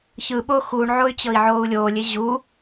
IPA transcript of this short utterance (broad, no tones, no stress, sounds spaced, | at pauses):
ç ɯ ɓ o x u ɳ ʕ o y̯ t͡ɕ ɤ i̯ ʕ oː u̯ lʲ oː lʲ e ʑ u